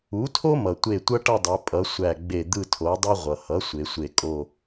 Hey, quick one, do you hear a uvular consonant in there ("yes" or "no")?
yes